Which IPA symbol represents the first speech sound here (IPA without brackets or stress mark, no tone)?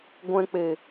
ɡʷ